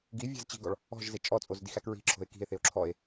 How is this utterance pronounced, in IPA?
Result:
ɡ i vʲ æ̤ z t͡ɕ i̤ ɡ ɔ ɭ | ɔ̤ ʒ z e t͡ʃʼ ɔ t͡sʼ o z d i x æ k ɹ i̤ ǁʰ o̤ e̯ k i̤ e̯ θ e o̯ ǁʰ ɔ e̯

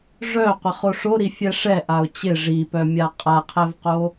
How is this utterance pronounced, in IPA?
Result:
ʐ œ qʷ ɪ χ o ʂ o ɾ i fʲ ɛ ʂ ɛ ʔ a ʊ̯ t͡ɕ ɪ ʐ i p œ mʲ a qʼ a qʰ ɛ v q o

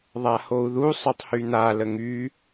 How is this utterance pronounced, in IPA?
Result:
ðˤ a h o u̯ ð u sˤ œ tˤ h y n̪ a l ə ŋ y

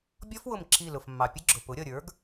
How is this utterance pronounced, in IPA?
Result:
bʲ ɔ˦˥ f w ʊ˧˩ m ǁ i˧˩ l ʊ˩ f mː ɑ˩ pʲ ə˦˥ ɡ͡ǁ ʊ˩ p ʊ˩˥ ɾʲ ʌ˧˩ ɾʲ ə˞˩˥ ɡ

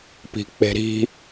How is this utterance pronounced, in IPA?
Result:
p i̤ k͡p e̤ ɾ i̤

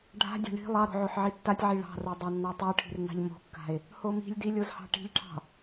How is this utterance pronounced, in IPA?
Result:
ɖʱ a̤ dʲ a̤ ɳ i̤ lˠ ɑ ɾ o̤ ʕ o ħ ʕ i tː a tʲ ʕ i ɭ ɑ̤ r o dˤ ɑ nː ɑ tˤ o ʈʰ i̤ r n ɑ̤ ʎ m o̤ kː a̤ e̯ | h o m i̤ lʲ d i lʲ o z h ɑ̤ ʈ i̤ ʎ ʈʰ ɑ̤

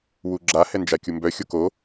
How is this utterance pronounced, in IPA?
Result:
w u ɡ͡ǁ a h ɛ n d͡ʒ a kʲ u m b œ xʲ o k o

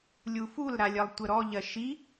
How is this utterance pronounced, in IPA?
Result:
lʲ u f u l ɾ a lʲ ɜ lˠ tʷ ə ɾ ɔ ʎ ɜ ʃ i

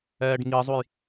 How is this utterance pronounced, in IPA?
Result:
ɛː ɖ ŋ i zˤ u j

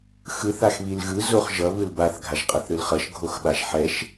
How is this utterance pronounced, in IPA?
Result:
x ɯ θ a x β i l ɣ ɯ z o χ ʒ ʌ β ɯ l b a θ ɡʱ a ʒ qʼ ʌ θ ɾ ɯ l χ ʌ ʃ ɡʱ o x ɓ a ʒ ħ ɛ ʃ

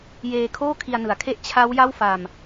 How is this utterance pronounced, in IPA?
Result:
j eː˧ kʰ oː˥˩ kʰ i˧ a̯ n ɯ˩˦ a̯ kʰ e˥˩ ʔ t͡ɕʰ a˦˥ w j a˥˩ w f a˧ m

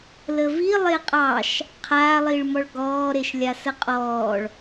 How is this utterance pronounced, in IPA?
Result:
l ə v i lˠ e qʼ ɑ ʃ | qʰ aː lˠ i ɭ m ɔ ɭ ɡ ɔː ɾ e ʃ lʲ a s ə qʼ ɔː ɭ

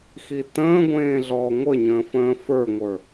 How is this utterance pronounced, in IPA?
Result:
x i t ə̃ː ɡʷ ẽː ɮ ɔː ŋʷ ə ɲ ə̃ː f ə̃ː f ə˞ ŋʷ ə˞

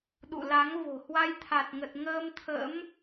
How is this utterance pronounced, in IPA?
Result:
ɗ ṵ˧˨ l a˨˦ ŋ v o̤˨˩ h w a˧ j t̪ʰ a˨˩ t̚ ŋ ə˨˩ t̚ ŋ əː˧ m t̪ʰ ə̰˧˥ m

